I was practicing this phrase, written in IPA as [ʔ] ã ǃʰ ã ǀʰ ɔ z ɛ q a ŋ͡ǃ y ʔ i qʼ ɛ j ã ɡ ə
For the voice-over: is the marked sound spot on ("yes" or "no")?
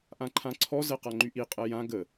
yes